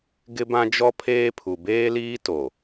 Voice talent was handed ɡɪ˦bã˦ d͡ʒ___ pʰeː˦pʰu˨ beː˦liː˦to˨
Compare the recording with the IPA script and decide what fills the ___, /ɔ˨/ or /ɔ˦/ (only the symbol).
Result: ɔ˦